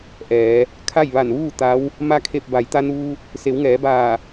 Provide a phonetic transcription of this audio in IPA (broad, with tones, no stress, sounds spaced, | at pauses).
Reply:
ʔ ɛː˩˧ | kʰ a˥˨ j ʋ a˧˩ n ʋ uː˥˨ t̪ a˧˥ w | m a˧ kʰ e˧˩ p̚ b a˩˧ j t̪ a˧ n uː˧ | s e˩˧ w ŋ ɛː˩˧ b aː˧˩